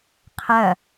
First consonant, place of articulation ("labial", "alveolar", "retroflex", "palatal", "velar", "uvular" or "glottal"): uvular